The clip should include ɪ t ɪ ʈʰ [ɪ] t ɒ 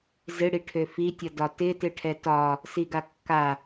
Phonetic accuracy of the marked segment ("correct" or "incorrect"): incorrect